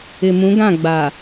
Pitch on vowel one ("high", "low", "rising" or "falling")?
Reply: low